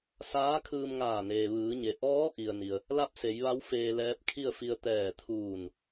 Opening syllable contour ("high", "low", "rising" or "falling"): rising